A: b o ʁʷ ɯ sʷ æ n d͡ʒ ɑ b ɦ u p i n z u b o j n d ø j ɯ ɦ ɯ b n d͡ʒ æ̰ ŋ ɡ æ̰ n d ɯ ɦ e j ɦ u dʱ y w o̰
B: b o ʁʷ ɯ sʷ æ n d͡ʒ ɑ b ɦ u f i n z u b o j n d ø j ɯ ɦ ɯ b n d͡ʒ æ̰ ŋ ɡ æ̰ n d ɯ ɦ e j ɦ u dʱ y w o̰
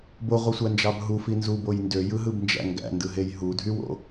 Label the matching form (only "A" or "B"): B